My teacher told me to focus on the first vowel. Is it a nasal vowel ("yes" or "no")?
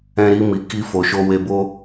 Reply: yes